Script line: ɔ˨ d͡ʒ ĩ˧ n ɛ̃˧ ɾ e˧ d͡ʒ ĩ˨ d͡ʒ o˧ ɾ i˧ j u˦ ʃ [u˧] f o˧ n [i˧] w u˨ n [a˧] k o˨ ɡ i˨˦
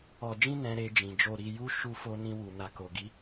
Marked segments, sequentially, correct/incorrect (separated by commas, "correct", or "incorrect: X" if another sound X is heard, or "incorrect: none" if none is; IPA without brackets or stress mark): correct, incorrect: ĩ˧, incorrect: a˨